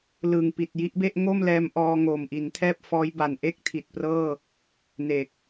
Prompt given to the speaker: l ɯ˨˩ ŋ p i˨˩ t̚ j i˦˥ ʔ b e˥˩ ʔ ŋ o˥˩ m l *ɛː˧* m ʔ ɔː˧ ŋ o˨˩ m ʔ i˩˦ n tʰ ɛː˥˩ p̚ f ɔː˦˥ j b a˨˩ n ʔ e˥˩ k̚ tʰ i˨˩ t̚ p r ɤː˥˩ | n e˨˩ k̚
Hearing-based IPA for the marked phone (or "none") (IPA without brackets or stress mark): ɛː˧